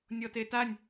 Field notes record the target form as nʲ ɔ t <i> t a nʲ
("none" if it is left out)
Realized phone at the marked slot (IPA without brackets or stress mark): e